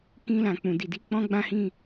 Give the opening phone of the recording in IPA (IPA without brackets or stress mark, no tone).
k